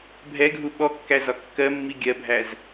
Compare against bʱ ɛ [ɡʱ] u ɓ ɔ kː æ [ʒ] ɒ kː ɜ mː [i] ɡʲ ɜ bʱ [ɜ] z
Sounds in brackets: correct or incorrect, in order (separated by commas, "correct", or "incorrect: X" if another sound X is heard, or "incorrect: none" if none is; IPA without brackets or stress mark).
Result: correct, incorrect: z, correct, incorrect: æ